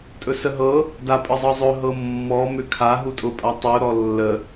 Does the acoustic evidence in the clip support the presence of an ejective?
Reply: yes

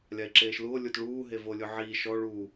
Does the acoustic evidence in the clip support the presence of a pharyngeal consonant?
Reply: yes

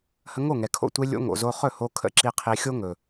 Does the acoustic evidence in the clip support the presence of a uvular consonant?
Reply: yes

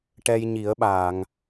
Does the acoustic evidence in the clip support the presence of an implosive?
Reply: yes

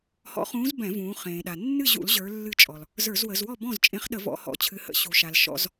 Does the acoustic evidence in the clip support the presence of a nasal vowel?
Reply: yes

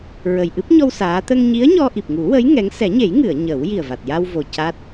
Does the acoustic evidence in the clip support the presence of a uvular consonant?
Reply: no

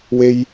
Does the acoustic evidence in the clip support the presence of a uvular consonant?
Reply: no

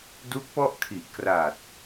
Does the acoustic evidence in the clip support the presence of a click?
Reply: no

